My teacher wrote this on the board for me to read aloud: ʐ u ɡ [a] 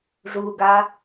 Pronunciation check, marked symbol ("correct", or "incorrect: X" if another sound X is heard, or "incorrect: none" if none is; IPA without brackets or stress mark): correct